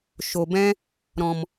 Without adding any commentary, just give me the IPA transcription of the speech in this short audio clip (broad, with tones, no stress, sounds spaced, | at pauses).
ʃ o˨ b ɛ̃˦ | ɾ ɔ̃˨ m